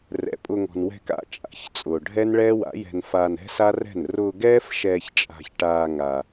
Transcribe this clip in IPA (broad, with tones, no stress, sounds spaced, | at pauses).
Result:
r ɛ̰˨ pʼ ʊ˧ ŋ ɔ̤˨ n w ɛ̤˧ k a̰˨˦ t͡ʃʼ a̰˨ ç t͡sʼ ʊː˨ ɖʱ ɛ˦ n ɭ ɛː˦ w a̰˨˦ j ɛ̤˧ n f aː˧ n ɛ̤˦ s a˦ r ɛ̤˦˨ n r ʊː˧ ɡ ɛː˦ f ʃ ɛː˧ ç t͡ʃʼ a̤˧ ç ʈ aː˧ ŋ a˧